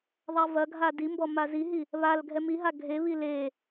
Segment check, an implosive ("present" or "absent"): absent